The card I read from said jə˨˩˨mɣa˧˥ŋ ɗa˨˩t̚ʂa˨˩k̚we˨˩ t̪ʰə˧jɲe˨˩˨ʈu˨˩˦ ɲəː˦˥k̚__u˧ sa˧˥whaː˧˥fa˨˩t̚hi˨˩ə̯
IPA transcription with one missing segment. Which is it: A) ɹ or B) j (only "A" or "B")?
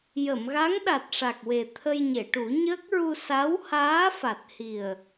A